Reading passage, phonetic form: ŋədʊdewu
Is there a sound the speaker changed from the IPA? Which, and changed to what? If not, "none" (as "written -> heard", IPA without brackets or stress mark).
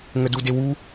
ʊ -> u